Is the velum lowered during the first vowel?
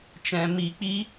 yes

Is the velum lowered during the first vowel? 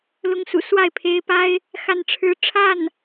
no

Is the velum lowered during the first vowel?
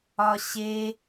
no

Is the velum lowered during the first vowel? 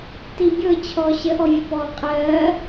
no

